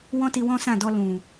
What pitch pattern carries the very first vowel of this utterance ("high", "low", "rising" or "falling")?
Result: high